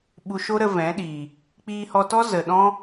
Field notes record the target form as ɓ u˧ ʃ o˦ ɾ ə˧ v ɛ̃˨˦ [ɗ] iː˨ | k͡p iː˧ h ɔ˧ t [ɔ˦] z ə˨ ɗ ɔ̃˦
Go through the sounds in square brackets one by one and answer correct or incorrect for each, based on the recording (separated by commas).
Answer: correct, correct